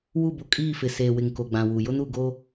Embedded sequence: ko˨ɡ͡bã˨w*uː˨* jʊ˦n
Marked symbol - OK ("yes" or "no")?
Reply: no